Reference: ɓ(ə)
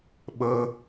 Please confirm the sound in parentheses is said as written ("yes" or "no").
yes